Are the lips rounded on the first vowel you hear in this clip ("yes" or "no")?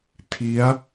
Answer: no